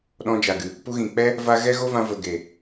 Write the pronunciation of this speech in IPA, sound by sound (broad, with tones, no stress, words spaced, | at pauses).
ɗɔ̃˧d͡ʒa˨ɡɨ˨ | pu˧ɣĩ˨k͡pɛ˦ | va˦ ɣɛ˦ɣo˦vã˧ və˨ɡe˨